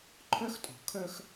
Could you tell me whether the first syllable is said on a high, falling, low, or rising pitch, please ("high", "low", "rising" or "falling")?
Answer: high